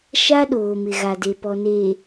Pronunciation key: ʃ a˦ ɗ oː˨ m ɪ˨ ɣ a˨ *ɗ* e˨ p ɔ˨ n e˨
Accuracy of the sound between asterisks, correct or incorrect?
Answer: incorrect